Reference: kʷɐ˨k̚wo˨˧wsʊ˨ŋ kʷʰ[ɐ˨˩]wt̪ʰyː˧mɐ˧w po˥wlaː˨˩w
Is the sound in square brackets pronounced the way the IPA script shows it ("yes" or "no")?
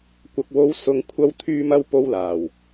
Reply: no